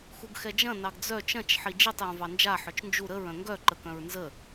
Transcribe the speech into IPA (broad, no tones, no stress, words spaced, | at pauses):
xuɡxɛd͡ʒɐ̃ nɑɡd͡zœ t͡ʃɐ̃t͡ʃ ħid͡ʒitˤ jœ̃vɑnd͡ʒa ħœt͡ʃnd͡ʒu ɾəɹ œ̃ŋɡœ ǃəkœ̃ɹnzə